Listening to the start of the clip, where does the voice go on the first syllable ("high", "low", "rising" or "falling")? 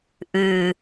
low